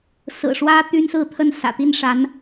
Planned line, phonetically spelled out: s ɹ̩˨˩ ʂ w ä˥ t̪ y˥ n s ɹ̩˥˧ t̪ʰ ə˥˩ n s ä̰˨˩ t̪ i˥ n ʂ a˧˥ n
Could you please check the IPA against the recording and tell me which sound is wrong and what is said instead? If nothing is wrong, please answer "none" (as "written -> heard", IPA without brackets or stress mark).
none